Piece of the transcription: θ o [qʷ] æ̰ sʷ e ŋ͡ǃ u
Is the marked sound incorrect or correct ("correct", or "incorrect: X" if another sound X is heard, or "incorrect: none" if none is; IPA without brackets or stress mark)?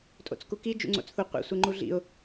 correct